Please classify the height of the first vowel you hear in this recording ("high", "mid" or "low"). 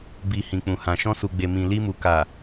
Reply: high